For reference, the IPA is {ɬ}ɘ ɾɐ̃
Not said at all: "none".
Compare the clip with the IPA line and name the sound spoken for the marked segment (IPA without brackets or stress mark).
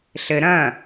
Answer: ɬ